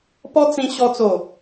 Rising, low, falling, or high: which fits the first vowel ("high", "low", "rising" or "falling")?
high